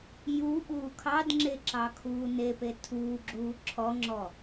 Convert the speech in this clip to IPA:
j u ɓ uː kʰ ɑ d ŋ͡ǁ e ǁ ɑ kʰ uː n e p e tʰ uː ɡ͡ǁ uː ǁʰ ɔ ŋ͡ǁ ɔ

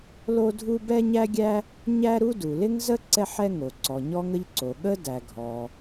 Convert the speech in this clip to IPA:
l o˥ dʱ u˥ b ɛ˥ ɲ æ˥ ɡʲ æ˥ | ɲ æ˥ ɾ u˥ d u˩ l ɪ˥ ŋ z ə˥ ǀ ɛ˥ ħ ɛ˥ ŋ o˩ ǀ ɔ˩ ɲ ɔ˥ ŋ ə˥ ʎ ǀ o˩ ɠ ə˥ d æ˩ ɡʱ ɔ˩

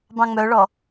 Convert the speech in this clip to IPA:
b ɑ̃ ŋ͡m œ ɭ ɔ

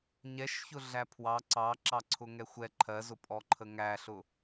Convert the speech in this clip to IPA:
ɲ ɛ ʃ ç ʊ ɮ æ pʰ w ɑ ǀ ɑ ǁ ɑ ǀʰ ʊ ŋ ɛ xʷ ɛ ǃʰ ɜ z ʊ pʼ ɔ ǃʰ ə ŋ æ ɬ ʊ

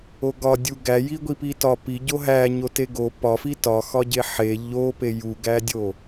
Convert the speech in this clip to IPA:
o ɡ ɒ dʲ u ɡ æ j i ɡʷ i p i t ɒ p i ɟ o ɦ æ ɲ o t e ɡ o p ɒ f i t ɒ x ɒ ɟ e ħ e ʎ o p e j u ɡ æ dʲ o

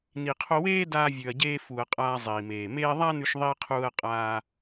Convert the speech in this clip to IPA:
n i˨ qʰ o˧ w eː˦ d aː˧ vʲ ʉ˨ ɐ̯ ɟ eː˧ f u˨ ɐ̯ qʼ aː˧ zˤ iː˨ m eː˨ m eː˧ ðˤ a˦ n ʉ˧ ʃ ðˤ iː˧ qʰ uː˧ ɐ̯ qʼ aː˧

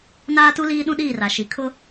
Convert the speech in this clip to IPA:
n aː˦ t u˦ l iː˦ ɗ ũ˦ ɗ iː˦˨ r a˨ ʃ i˨ kʰ ʊ˦

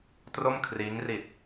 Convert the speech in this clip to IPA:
t r o˥˩ m kʰ r iː˦˥ ŋ r i˨˩ t̚

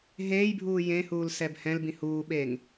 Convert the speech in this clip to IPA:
ɦ eː j bʱ uː j ẽ h uː l s ɛ b h ɛ̃ l b ĩ h uː ɓ e ŋ

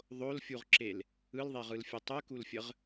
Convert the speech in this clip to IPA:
ðˤ o l fʲ u ʁ ǁ e l | ɯ l ðˤ e ʁ ɯ l fʲ u tˤ ɯ k u l fʲ ə ʁ

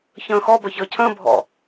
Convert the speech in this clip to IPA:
ç ə̃ː x ɔ b ɜ ç əː cʰ ə̃ː bʱ ɔ̰

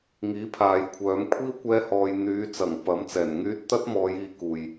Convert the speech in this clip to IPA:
ŋ iː˨˥ pʰ aː˨ j kʷʰ œː˨˧ m kʷʰ iː˥ w kʷ ɛː˥ h ɔː˧ j n̪ yː˨˧ t͡s ɐ˨˩ ŋ p ɐ˨˥ m t͡s ɛː˨˩ n ŋ yː˥ t̚ t̪ ɐ˥ t̚ m ɔː˨˧ j iː˧ k uː˨ j

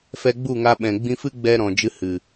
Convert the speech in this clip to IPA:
f ɛ˧ ɡ͡b u˦˨ ŋ a˧ ɓ ɛ̃˨ ɡ͡b ĩ˧ f ɨ˦ ɡ͡b ɛ˧ ɾ ɔ̃˨ d͡ʒ ɨ˧ h ɨ˨

